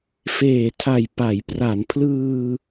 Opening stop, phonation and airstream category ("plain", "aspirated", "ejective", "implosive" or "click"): aspirated